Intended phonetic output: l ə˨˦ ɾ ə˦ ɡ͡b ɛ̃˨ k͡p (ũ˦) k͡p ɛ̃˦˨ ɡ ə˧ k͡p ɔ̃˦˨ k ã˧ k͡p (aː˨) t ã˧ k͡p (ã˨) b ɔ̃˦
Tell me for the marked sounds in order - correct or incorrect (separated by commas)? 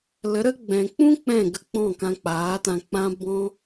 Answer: correct, incorrect, incorrect